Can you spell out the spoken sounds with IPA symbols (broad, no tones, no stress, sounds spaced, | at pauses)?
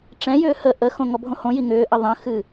ʈ͡ʂ ɛ̃ j ʏː h ə ʔ ə x õ ŋ ɔ bʱ õ h õ j i ŋ ʏː ʔ ə ðˤ ə̃ x ɨ